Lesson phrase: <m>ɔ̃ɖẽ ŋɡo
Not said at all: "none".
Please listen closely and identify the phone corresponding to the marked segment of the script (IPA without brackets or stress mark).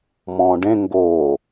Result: m